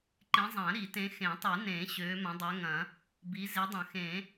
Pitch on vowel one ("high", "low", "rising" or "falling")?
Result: rising